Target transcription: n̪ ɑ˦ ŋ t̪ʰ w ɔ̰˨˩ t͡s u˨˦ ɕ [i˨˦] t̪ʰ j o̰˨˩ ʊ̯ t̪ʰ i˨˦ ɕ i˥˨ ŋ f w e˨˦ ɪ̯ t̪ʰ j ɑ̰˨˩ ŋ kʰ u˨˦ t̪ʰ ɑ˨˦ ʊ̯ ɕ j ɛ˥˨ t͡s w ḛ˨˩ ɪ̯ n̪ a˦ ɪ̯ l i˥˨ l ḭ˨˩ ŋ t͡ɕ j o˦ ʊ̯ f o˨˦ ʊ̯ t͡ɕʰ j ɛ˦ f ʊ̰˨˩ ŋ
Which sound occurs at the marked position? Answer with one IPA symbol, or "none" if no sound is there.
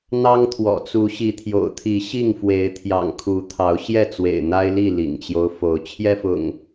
i˨˦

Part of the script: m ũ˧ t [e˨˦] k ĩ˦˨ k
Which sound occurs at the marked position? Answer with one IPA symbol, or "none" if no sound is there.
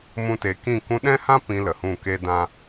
e˨˦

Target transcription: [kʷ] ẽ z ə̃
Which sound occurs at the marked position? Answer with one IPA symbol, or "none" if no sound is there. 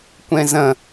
kʷ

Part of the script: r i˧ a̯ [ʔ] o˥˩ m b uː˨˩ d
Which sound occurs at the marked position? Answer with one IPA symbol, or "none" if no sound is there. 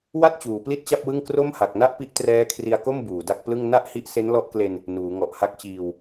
k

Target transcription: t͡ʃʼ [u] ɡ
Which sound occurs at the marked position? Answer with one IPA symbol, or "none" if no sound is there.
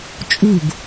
u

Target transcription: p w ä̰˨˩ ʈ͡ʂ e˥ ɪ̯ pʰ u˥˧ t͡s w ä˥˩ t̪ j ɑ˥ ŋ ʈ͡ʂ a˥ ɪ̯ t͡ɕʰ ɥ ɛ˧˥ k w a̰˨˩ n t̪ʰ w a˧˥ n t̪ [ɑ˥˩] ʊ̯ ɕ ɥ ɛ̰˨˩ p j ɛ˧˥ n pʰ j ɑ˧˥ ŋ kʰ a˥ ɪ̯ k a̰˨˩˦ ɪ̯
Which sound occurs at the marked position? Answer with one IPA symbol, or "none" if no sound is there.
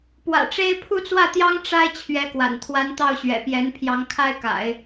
ɑ˥˩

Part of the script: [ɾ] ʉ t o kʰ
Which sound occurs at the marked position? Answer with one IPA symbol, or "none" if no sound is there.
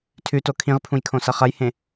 tʰ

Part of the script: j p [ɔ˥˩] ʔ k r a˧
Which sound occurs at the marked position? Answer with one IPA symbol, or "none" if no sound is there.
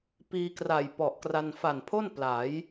ɔ˨˩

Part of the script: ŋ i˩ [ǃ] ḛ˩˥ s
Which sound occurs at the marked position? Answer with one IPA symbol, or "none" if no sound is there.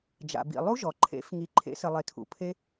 ǃʰ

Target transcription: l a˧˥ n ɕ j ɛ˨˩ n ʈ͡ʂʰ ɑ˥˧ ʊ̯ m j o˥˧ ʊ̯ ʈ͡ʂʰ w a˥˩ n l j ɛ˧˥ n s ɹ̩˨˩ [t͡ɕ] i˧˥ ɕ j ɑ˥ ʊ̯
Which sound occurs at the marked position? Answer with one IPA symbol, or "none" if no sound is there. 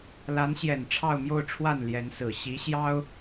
ɕ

